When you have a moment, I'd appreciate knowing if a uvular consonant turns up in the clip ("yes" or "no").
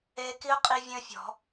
yes